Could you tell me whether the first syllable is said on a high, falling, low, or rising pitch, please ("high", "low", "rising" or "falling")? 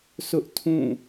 high